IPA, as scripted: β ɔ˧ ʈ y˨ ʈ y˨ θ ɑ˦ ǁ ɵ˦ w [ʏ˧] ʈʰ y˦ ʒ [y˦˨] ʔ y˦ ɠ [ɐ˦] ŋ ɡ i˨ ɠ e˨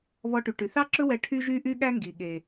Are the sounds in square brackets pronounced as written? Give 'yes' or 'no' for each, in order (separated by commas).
no, no, no